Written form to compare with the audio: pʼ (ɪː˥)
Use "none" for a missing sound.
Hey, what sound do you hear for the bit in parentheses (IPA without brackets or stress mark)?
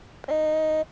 ɛː˥